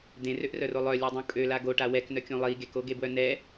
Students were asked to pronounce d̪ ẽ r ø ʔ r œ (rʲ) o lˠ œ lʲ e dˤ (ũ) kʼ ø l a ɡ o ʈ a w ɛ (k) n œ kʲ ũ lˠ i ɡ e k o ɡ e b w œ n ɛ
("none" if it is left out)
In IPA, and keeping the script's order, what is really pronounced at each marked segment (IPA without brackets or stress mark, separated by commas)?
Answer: r, ũ, k